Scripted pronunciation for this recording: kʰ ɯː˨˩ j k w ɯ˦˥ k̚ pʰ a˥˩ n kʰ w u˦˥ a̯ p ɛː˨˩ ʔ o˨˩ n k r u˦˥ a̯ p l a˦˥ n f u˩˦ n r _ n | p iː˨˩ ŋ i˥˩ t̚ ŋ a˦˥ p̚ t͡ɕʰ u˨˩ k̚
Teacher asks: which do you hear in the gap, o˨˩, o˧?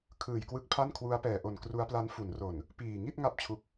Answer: o˨˩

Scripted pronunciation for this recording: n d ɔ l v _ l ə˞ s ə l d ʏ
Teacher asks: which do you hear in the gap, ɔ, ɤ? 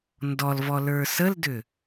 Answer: ɔ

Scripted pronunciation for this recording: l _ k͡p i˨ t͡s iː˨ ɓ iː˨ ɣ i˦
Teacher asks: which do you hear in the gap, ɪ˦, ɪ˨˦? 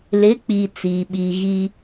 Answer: ɪ˨˦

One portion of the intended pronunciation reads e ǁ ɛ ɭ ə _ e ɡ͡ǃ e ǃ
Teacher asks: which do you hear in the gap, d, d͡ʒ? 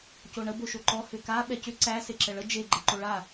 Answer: d͡ʒ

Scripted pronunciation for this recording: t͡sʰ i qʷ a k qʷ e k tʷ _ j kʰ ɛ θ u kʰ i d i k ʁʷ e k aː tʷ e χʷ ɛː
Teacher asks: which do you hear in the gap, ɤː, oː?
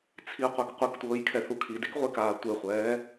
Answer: ɤː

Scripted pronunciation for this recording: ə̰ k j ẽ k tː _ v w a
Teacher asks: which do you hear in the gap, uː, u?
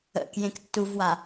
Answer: u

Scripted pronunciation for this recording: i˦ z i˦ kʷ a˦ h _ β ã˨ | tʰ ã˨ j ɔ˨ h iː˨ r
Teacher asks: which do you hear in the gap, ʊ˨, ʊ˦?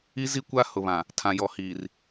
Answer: ʊ˨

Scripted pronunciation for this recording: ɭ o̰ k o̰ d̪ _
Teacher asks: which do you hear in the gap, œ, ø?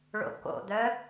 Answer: œ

